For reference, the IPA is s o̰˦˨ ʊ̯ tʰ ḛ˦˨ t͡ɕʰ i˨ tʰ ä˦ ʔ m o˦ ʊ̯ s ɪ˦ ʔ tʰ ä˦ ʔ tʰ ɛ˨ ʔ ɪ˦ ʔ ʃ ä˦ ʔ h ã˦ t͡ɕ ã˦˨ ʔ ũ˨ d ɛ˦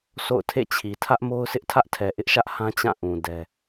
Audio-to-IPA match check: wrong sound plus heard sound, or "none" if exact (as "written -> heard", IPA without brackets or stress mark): none